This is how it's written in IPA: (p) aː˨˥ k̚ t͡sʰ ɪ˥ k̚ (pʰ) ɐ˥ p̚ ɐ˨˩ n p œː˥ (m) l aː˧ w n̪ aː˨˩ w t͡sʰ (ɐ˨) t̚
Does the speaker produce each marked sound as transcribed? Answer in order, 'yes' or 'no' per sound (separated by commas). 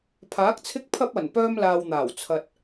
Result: no, yes, yes, yes